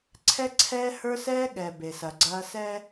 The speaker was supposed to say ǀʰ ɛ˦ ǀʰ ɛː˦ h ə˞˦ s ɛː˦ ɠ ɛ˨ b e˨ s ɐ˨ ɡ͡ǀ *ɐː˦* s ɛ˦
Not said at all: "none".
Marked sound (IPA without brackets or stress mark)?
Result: ɐː˦